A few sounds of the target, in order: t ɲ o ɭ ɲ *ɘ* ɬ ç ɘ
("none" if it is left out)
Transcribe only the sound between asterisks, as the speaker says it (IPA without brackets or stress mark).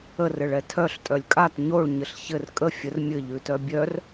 ɘ